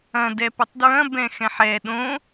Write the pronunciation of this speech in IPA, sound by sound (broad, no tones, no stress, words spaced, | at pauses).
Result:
ɐ̃ dɛpʊtˤdɹɐ̃ bɛ̃xɛ̃ħɛ ɗõ